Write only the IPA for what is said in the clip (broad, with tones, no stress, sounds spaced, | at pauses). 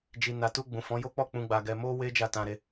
d͡ʒ i˨ n a˨ t u˧ ɡ͡b ũ˨ f ɔ̃˨˦ j o˦ k͡p ɔ˦˨ k͡p ũ˧ ɡ͡b a˧ ɡ ɛ˧ m o˦ w e˦ d͡ʒ a˦˨ t ã˧ ɾ e˧